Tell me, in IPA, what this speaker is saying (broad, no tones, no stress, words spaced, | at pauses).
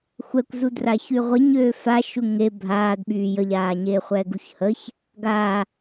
xʷɛkʷzu draːçyʁʷiɲøː fa ʃuŋe bʱaːdɓyː jəʎaːɲeː χʷɛːɡuçhəç | ɡa